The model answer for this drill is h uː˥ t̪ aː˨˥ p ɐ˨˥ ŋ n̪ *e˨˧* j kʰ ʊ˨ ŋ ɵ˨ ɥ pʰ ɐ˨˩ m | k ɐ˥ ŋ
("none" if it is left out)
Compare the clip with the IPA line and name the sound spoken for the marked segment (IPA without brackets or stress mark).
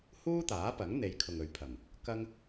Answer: e˨˧